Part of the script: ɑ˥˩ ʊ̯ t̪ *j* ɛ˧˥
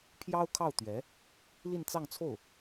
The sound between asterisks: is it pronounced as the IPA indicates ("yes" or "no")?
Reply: no